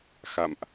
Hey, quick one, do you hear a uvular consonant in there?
no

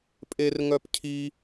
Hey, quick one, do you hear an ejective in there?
yes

